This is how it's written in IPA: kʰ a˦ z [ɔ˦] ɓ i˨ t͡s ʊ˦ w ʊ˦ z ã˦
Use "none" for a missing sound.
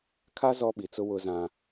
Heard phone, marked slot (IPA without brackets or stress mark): ɔ˦